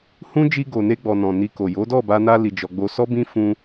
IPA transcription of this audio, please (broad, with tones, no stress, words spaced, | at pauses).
hũ˦ d͡ʒi˧ɡo˨ne˧ɡ͡bɔ˨ nɔ̃˨ni˧ko˨ jo˨˦dɔ˦˨ba˧ na˧ li˧d͡ʒɔ˧ ɡ͡bo˧sɔ˦bĩ˦ fũ˧